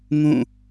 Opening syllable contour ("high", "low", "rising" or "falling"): falling